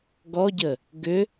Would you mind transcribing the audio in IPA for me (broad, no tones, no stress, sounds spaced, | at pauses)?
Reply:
ɡ ɔ ɟ ə | ɡ ʏ